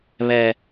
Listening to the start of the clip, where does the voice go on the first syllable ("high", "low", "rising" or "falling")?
low